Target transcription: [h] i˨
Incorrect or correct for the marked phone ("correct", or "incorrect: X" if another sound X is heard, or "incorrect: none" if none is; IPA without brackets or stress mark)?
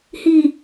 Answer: correct